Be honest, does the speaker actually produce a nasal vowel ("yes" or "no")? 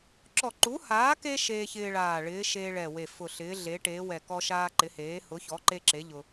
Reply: no